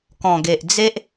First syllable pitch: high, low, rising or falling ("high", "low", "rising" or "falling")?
low